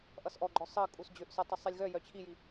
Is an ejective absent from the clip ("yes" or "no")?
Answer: no